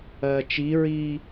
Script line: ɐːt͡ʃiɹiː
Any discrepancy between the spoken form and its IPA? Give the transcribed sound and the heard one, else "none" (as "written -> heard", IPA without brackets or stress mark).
none